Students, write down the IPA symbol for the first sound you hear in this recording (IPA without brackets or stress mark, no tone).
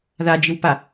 ð